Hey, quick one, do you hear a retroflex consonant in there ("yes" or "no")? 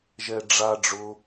yes